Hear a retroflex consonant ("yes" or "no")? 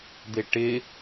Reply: yes